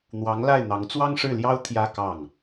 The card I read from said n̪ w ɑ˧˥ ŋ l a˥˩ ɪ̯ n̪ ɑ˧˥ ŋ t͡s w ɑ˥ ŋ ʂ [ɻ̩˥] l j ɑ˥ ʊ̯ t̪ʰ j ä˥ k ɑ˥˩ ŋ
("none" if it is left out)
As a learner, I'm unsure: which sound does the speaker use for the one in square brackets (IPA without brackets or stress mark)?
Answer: ɻ̩˥˩